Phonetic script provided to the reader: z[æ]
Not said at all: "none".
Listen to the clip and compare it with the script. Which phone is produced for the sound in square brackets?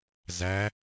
æ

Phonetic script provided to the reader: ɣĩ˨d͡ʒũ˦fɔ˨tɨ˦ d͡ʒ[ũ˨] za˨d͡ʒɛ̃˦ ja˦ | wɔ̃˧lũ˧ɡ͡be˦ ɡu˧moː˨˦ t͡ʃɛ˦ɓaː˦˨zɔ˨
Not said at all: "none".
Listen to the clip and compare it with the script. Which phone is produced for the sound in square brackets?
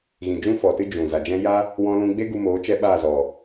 ũ˨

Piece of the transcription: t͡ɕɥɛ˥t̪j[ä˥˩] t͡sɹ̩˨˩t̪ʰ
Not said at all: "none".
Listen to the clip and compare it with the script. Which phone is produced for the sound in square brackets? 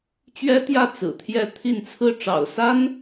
ä˥˩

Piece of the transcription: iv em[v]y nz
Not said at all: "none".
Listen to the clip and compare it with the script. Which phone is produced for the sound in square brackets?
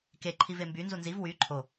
b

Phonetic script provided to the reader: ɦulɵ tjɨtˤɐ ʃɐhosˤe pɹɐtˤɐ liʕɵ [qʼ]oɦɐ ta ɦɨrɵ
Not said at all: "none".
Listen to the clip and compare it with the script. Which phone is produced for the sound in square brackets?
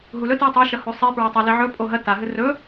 pʼ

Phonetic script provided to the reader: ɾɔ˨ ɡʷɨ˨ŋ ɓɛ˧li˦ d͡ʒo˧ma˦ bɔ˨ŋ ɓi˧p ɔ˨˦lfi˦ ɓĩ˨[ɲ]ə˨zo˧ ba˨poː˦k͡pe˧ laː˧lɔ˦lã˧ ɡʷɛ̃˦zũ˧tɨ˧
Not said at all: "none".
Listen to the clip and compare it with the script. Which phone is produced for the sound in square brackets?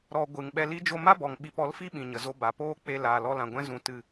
ɲ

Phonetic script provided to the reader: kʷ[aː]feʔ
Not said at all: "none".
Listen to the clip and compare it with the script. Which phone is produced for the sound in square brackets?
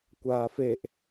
aː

